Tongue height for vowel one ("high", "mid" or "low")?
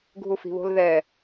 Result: high